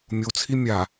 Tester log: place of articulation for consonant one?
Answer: labial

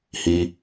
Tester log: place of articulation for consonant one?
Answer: glottal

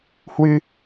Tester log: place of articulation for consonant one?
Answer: glottal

